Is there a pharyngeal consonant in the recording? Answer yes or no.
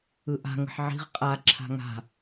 yes